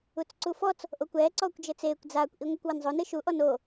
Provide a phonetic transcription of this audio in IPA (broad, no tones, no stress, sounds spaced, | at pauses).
u t͡s ǀ u f ɔ t͡s | ʔ o kʷ ɛː ǀ ɔː kʷ d͡ʒ ɘ t͡s eː kʷ d͡z aː kʷ ʔ i ŋʷ e kʷ w ɐ n zˤ o n ɨ ʃ u ʔ ɔ n o